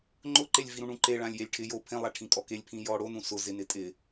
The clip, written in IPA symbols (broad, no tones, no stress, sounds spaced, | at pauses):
ŋ͡ǃ ʊ ǃ e lʲ v i ɾ ũ ɳ ũ ǃ e ɭ ã lʲ j e lʲ ʈʰ ɪ j o pʰ ẽ lˠ a ʈʰ ĩ kʼ ɔ k e lʲ pʰ ĩ j ɔ ɽ o n ũ s ʊ z ɪ n ɪ tʼ ɪ